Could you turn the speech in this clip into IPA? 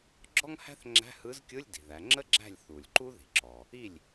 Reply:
ɡ͡ǁ ɔ˥ ŋ h æ̤˥ θ ŋ͡ǁ æ̤˧˥˧ h ɯ˧˥ z kʲ ɯ˧˥˧ lʲ d i̤˩ ð æ˩˧ ŋ͡ǁ ə˥ ɡ͡ǁ æ̤˥˩ lʲ θ u˩ lʲ ǃ u˥ ð i̤˩ ǁ ɔ˩ | i˥˩ lʲ

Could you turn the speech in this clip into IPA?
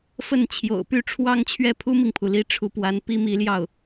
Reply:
f ə˥˩ n t͡ɕʰ j o̰˨˩ ʊ̯ p y˥˧ ʈ͡ʂʰ w ɑ˥˧ ŋ t͡ɕʰ ɥ ɛ˥˩ pʰ u˥ m i˨ ŋ pʰ u˩ l i˧˥ ʈ͡ʂʰ u˧˥ p w a˧˥ n p i˥ m i˧˥ l j ɑ˥˩ ʊ̯

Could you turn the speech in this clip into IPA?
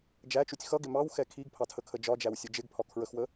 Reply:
d͡ʒ æ t͡ʃ u tʲ x ʌ ɡ ɪ m ɑ w x ɛ kʰ i ɡ pʰ ɑ tʰ ə kʰ ə d͡ʒ ɒ d͡ʒ æ w sʲ ʊ d͡ʒ ɪ ɡ pʰ ɒ kʰ ɹ ə x w ə

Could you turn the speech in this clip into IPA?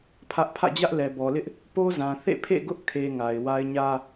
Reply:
pʰ ä˦ ʔ pʰ ä̰˦˨ d͡ʑ ä˦ ʔ l ɛ˨ b ɔ˨ l ɪ˦ ʔ | p o˦ z ã˨ θ ḛ˦˨ pʰ ḛ˦˨ ɡ ʊ˦ ʔ kʰ e˨ ŋ a˨ ɪ̯ w a˦ ɪ̯ ɲ ä˦

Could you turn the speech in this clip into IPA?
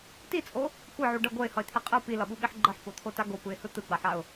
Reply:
t i t͡sʼ o | kʷ ʌ ʕ u ɖ ʌ ɡʷ ɛ ɪ̯ h ʌ ɪ̯ t̪ʰ e qʼ ɯ p i l ʌ ɓ u ɓ i ħ ɡ͡ǃ ʌ ħ p o t̪ʰ o t a ɡ o p ɯ ɪ̯ h ɯ t̪ ɯ ɡ͡b a ħ a ʊ̯

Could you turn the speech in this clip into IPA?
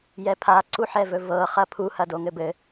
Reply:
j ɛ pʰ a ǀ u ħ ɛ v ɵ v ɤ χ ɐ pʰ u h ɐ d o ŋ ɘ b ɘ

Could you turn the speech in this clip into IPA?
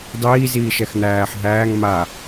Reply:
dˤ iː z iː ʃ ɛ x n̪ æː ħ ɦ æː ŋ m a

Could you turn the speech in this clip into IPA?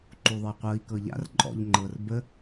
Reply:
ǃ u ðˤ ə i̯ qʷ ɤ i̯ k ɤ ʎ a̰ r ǃʼ ɔ̰ ʎ ŋ͡ǃ ɤ r b ə

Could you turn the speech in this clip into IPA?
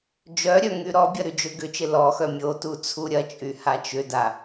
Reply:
d͡ʒ œ ɾʲ œ ŋ y ɾ ɔ bʲ ɐ ɾ y d͡ʒ ø ɡ ʏ t͡ʃ ɪ l ɔ x œ mʲ o t u t͡sʰ u ɾʲ ɐ t͡ʃʼ y h a t͡ʃ ʏ d a

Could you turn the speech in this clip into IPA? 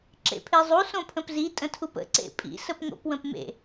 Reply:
ǁ ḛ pʰ e zˤ u s õ pʰ ə̃ p z i tʼ ə̃ tʰ u p ə̰ ǀ ḛ pʼ ḭ s ə p ŋ o̰ p w ə̃ p m ḛ

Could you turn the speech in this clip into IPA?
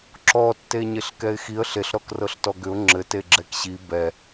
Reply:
ǁ ɔ tː e ɲ e ɬ k ɛ ɪ̯ x i ə̯ ɬ e ɬ ɾ ɔ k r ɤ ɬ t ɔ ɡ ʏ ʊ̯ ŋ͡ǁ ɘ t e ɡ͡ǁ ɛ k ɕ i b ɛ

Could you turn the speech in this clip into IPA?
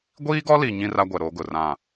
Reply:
ɡʷ iː˦ ɡ ɔ˦ l i˨ ɲ ĩ˦ r a˦ ɡʷ ɛ˨ ɾ o˨˦ ɡ ʊ˨ r ã˦˨

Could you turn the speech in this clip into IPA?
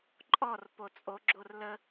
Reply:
ǃʼ ɔ r p o t͡sʼ o ɡ͡ǁ o r l ə

